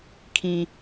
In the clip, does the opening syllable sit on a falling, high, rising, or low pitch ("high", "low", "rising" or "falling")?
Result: low